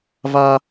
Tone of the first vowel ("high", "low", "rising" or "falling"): high